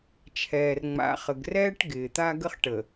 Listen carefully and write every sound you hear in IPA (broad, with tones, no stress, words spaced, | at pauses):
t͡ʃʰɛː˨rŋ͡ma̰˨χə˨ɡrɛː˦ʈ ɡɪː˨t̪a˦ɡə˦χʈə˨